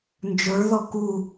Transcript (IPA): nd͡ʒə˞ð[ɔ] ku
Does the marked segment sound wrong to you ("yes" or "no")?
no